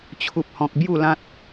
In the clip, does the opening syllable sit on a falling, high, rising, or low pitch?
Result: high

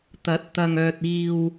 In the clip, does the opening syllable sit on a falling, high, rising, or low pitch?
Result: rising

